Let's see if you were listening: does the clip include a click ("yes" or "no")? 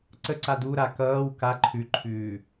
yes